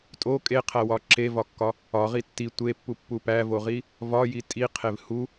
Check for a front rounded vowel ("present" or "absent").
absent